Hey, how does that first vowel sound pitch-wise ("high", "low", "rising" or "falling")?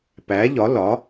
rising